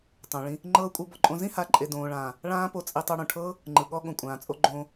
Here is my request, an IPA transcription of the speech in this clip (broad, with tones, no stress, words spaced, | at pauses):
tˤõ˨ ɭĩ˧ | ŋ͡ǃɤː˧kʷʼɤ˧ bɔ˧ǃʼõ˧ zĩ˦ha˨˦ǃʼe˨ dõː˨ɭãː˨ | ɭãː˦po˧t͡sʼi˧tˤɤ˧ ɽõ˨ʈʰɤː˦ | ŋ͡ǃɯ˨ɠɔ˧ ɠõ˨kʷʼãː˨ t͡sʼo˧ ɡ͡ǃõː˧